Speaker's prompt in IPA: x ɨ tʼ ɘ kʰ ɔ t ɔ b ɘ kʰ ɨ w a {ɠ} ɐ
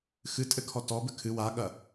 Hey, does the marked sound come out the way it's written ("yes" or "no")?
yes